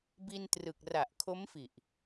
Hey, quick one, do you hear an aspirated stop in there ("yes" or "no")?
yes